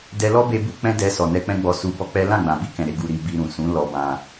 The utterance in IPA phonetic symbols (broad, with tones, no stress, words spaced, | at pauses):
dɛ˧lɔ˦ be˧bu˧ k͡pɛ̃˦dɛ˧ sɔ˨nɛ˧k͡pɛ̃˦ ɡ͡bɔ˧su˧bɔ˦k͡pɛ˦ lã˦˨ɡ͡bã˨bi˧kɛ̃˨ ɾe˨˦ɡu˧ɾi˧ bi˧ɾũ˨ sũ˨˦ lɔ˧bã˧